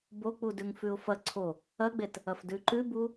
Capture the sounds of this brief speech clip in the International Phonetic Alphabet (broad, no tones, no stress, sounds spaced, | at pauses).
b o k͡p u d ʉ ŋ f ʉ ʊ̯ f ɐ ǀʰ o | ɐ ɡ͡b e t | ɐ f d ʉ ǃ ʉ b u